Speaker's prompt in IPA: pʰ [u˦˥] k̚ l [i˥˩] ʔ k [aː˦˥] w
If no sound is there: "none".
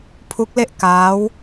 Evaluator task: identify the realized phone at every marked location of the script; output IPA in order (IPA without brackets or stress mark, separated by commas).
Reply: u˦˥, e˥˩, aː˦˥